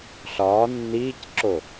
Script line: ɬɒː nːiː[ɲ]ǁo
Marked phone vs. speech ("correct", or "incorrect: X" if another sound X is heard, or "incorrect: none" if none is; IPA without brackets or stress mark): incorrect: c